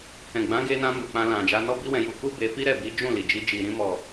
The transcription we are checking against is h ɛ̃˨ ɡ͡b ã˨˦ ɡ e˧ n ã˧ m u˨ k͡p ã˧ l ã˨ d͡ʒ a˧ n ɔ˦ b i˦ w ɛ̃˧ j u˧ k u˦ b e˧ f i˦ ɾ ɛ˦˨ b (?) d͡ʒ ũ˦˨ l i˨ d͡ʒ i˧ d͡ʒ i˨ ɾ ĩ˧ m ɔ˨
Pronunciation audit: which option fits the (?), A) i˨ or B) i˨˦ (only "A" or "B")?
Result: B